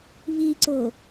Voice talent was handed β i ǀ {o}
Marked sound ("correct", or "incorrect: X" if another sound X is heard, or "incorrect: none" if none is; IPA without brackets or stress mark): correct